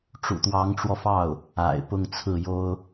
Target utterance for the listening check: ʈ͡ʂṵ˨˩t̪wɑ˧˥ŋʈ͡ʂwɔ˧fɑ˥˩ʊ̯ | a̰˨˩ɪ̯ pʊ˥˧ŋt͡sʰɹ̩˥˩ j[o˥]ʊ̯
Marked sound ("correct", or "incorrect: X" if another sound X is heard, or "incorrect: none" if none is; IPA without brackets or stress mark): correct